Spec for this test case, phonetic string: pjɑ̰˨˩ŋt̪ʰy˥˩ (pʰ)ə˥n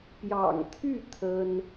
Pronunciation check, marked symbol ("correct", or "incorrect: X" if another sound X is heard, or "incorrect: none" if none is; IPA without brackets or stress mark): incorrect: t̪ʰ